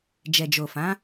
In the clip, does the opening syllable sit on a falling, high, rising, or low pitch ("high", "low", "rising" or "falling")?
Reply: low